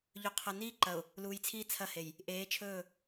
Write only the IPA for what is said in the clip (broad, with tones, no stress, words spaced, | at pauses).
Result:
ʎɵ˨qʰɐ˨niː˦ ǃɐ˨ʊ̯ | luː˨jt͡sʰiː˦ t͡sʰɐ˦˨he˨j | ʔeː˨˦t͡ʃʰɵː˦˨